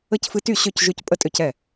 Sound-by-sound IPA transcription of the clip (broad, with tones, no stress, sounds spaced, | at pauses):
ə˥˩ c f ɨ˦ t y˥˩ ɕ ø˥˩ c ʒ ø˦ c pʼ ə˦ tʼ ø˦ c ɛ˥˩